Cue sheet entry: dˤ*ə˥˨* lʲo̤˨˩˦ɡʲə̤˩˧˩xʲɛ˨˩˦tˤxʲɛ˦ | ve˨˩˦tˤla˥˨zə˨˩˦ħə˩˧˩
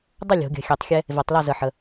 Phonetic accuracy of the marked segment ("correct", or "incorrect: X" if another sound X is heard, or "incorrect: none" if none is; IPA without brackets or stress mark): incorrect: ʌ˥˨